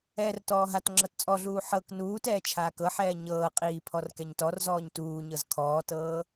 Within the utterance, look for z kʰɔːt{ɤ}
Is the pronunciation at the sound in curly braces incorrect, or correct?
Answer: incorrect